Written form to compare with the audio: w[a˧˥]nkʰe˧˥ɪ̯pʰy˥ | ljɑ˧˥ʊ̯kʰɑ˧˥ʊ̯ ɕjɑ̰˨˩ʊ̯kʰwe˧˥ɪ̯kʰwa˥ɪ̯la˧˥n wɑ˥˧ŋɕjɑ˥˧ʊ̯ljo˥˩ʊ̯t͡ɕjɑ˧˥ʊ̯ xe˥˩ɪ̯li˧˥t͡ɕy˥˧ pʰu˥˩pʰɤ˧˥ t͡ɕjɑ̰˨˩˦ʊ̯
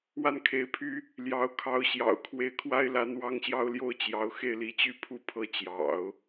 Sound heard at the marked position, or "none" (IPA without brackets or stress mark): a˥˩